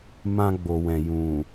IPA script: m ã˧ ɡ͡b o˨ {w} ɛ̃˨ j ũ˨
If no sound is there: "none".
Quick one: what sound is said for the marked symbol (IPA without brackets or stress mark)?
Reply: w